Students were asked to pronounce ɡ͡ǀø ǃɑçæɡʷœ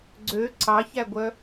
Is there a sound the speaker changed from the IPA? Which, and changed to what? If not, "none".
ǃ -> ǀ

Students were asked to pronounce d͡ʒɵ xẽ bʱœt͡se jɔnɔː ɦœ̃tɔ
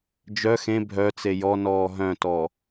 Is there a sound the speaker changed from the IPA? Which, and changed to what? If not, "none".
ɵ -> œ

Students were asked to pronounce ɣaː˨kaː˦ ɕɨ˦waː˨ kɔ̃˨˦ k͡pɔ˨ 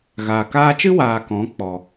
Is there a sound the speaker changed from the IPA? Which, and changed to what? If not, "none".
ɕ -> t͡ʃ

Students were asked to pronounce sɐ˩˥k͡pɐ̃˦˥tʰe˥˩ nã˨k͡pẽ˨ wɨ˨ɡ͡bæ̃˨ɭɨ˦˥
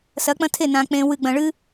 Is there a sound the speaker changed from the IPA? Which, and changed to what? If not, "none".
æ̃˨ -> ɐ̃˨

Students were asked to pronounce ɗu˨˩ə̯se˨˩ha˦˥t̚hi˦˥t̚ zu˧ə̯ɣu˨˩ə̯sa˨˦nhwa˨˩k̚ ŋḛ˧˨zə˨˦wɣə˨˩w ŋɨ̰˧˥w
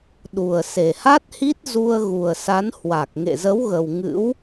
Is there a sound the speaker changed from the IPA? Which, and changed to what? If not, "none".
none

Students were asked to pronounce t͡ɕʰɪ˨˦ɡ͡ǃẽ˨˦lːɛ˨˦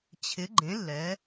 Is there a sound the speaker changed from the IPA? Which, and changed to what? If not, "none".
none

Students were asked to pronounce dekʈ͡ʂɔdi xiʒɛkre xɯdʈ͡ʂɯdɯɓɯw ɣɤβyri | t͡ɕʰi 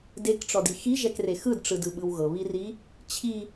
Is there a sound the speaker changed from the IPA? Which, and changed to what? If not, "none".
y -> i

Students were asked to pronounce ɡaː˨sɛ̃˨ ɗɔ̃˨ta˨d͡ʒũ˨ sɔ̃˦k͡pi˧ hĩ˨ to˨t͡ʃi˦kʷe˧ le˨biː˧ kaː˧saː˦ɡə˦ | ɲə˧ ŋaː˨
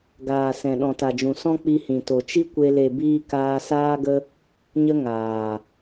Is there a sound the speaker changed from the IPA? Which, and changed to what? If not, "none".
none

